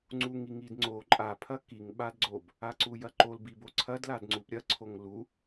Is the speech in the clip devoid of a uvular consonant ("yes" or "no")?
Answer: yes